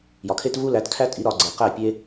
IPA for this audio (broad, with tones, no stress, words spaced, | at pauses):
jɒ˨kʰe˦t vu˦læ˨˦tkʰæ˦tʼi˨˦ ɾɒ˨ɡ͡ǀe˨ qæ˦˨pʲe˦